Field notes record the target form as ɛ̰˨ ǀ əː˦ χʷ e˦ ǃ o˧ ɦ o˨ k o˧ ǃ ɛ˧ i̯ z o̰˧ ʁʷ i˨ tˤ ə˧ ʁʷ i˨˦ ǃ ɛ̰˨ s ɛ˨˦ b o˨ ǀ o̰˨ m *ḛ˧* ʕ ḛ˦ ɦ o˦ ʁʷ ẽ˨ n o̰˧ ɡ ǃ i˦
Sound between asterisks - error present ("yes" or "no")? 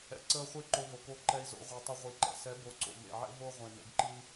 yes